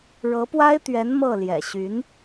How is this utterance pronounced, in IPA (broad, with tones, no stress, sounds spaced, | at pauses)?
ɻ ɤ˧˥ p w a˥ ɪ̯ t̪ ɥ ɛ˧˥ n m ɤ˥˩ l j ɛ̰˨˩ ɕ y˧˥ n